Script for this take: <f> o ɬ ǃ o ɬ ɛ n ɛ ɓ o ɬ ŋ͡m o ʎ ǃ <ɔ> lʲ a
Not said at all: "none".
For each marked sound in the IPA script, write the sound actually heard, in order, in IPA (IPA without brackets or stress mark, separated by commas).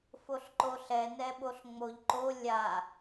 f, o